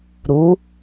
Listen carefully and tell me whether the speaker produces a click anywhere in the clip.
no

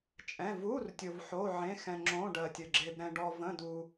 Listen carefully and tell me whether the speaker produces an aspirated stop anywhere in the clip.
no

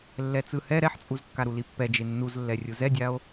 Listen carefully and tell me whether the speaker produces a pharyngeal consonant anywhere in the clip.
yes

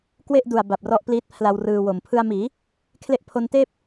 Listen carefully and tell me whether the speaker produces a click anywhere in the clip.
no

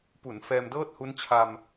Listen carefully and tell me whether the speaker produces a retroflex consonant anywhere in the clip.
no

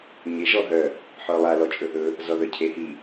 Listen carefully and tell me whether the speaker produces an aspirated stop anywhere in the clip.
yes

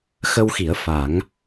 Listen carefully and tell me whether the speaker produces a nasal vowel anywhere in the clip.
no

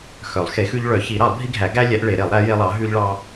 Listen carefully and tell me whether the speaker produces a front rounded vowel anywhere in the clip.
yes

